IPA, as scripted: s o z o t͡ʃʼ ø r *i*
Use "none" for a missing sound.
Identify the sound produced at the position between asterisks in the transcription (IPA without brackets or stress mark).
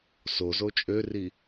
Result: i